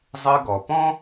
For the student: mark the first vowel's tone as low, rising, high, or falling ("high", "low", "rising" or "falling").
high